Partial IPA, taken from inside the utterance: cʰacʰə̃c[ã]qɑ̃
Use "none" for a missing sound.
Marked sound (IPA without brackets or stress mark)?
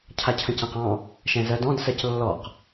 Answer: ã